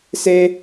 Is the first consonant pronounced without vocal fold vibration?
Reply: yes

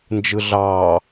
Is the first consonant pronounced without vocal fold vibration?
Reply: no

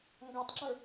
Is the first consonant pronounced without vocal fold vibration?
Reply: no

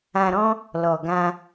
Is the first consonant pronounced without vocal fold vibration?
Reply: no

